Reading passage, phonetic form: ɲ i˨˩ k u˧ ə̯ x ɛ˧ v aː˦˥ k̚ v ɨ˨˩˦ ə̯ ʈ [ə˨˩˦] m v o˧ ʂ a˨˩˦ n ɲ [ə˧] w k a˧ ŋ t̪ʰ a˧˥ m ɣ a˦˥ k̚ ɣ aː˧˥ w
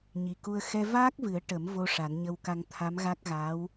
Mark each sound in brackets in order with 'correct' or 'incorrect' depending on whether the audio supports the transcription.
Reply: correct, correct

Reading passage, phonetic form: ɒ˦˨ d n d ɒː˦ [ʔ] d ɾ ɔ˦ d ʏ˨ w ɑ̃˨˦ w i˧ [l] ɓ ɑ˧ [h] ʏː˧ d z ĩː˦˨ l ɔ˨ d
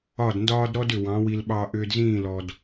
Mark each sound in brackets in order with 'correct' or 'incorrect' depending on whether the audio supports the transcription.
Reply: incorrect: none, correct, incorrect: ʔ

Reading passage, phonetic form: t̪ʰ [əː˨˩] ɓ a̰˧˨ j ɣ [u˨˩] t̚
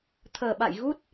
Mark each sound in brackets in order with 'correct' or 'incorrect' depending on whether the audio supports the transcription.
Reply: correct, incorrect: u˦˥

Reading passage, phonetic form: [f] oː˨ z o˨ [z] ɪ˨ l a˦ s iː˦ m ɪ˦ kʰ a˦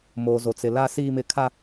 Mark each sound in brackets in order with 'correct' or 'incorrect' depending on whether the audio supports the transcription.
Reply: incorrect: m, incorrect: t͡s

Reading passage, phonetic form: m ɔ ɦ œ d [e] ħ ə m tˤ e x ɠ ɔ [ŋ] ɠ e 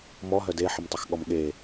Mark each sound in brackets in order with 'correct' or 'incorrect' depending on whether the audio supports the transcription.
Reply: correct, incorrect: m

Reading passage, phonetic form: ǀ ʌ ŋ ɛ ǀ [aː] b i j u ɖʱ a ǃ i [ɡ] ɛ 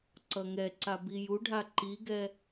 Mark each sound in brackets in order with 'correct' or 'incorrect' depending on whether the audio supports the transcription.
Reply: incorrect: a, correct

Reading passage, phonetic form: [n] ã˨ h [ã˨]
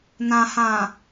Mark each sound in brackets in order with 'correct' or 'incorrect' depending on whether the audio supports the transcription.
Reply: correct, correct

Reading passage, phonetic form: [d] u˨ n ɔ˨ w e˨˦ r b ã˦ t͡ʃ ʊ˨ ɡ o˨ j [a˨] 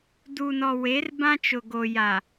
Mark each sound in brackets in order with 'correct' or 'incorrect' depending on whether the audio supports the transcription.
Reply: correct, correct

